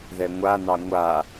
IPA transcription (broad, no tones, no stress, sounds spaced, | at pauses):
ð ɛ ŋʷ a n ɑ ŋʷ a